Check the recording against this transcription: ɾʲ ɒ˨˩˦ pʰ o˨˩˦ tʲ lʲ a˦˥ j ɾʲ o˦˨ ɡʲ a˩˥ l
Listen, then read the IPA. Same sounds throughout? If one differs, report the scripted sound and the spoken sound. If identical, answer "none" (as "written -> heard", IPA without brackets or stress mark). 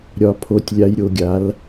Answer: none